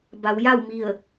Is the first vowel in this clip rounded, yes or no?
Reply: no